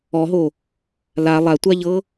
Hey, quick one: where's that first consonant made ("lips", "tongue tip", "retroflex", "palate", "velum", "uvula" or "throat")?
throat